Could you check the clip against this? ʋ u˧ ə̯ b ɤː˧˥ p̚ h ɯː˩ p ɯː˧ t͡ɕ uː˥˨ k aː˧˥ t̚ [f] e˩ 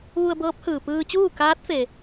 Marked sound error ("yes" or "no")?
no